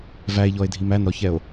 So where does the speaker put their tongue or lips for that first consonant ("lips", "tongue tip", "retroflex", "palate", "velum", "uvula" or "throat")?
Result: lips